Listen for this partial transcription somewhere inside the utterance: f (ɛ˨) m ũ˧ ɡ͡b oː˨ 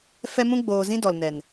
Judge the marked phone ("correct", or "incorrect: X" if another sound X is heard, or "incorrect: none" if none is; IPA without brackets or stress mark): incorrect: ɛ˧